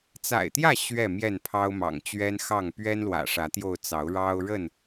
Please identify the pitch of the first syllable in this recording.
low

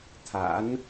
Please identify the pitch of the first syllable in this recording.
rising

